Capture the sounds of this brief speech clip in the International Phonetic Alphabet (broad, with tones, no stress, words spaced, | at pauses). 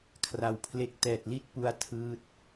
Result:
kʰra˨˩wpʰle˦˥k̚ tɛː˨˩t̚li˥˩t̚pu˧a̯ tʰɯː˦˥t̚